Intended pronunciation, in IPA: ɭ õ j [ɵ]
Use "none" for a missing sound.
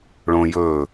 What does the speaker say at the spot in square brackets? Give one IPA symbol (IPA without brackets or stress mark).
ɵ